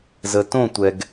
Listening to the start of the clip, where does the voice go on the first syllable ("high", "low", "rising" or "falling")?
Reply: low